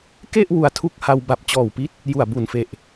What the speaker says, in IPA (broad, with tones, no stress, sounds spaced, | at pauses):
k e˥˩ ʔ w u˧ a̯ tʰ u˦˥ k̚ h a˧ w b a˨˩ p̚ t͡ɕ ɔː˨˩ w p i˦˥ t̚ | j u˨˩ a̯ b u˨˩ n f e˨˩ ʔ